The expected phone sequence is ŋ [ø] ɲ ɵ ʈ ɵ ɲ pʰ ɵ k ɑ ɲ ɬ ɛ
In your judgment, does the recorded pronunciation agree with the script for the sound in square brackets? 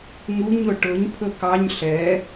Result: no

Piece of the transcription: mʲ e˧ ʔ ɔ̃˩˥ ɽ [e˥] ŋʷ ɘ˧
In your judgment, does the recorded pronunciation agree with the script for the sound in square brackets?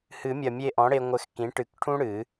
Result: no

